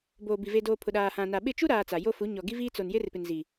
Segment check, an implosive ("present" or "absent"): present